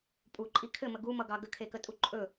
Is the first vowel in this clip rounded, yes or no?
yes